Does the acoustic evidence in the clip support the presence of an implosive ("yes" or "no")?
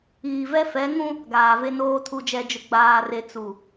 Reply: no